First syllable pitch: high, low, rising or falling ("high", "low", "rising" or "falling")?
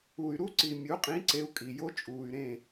low